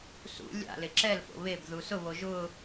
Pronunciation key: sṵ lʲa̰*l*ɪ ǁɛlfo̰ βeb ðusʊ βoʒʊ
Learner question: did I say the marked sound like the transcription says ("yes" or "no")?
yes